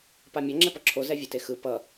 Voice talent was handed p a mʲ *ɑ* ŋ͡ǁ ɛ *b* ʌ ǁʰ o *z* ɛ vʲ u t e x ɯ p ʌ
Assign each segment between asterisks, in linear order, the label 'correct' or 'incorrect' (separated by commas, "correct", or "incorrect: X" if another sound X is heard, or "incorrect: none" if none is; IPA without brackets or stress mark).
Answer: incorrect: ʌ, incorrect: p, correct